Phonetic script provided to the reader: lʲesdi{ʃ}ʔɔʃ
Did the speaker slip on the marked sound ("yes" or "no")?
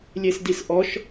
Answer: yes